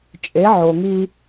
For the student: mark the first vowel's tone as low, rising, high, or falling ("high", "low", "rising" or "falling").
rising